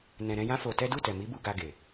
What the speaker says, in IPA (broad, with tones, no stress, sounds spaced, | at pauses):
n ɛ̃˧ ɾ ɛ̃˦ j ã˦ f o˧ t ɛ˦ d u˦˨ t ɛ˨ m i˨˦ b u˧ ɡ a˧ ɡ e˨